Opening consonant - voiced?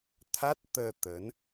no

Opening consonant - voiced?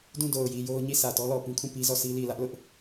yes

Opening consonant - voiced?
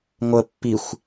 yes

